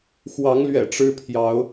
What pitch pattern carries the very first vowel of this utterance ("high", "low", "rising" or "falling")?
rising